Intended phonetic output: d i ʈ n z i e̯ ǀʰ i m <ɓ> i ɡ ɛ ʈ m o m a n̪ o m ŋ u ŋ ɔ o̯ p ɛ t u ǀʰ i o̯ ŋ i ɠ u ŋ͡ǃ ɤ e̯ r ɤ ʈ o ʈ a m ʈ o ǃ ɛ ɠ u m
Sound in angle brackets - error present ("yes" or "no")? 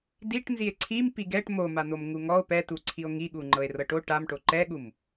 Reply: yes